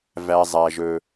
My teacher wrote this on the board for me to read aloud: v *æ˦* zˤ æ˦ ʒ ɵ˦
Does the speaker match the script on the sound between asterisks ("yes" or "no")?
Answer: yes